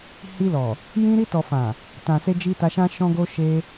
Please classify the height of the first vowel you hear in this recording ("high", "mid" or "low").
high